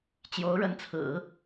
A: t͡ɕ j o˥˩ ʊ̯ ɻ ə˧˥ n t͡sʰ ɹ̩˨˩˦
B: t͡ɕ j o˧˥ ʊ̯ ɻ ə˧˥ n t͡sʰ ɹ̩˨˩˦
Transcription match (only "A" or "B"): B